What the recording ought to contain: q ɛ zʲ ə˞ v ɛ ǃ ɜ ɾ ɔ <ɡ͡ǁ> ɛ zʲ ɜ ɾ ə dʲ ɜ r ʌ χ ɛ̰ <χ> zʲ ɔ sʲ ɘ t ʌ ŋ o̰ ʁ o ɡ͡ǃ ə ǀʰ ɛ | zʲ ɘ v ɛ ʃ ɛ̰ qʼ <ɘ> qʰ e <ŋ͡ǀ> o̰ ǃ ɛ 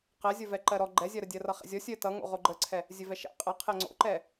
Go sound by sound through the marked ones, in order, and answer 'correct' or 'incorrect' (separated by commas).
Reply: incorrect, incorrect, correct, correct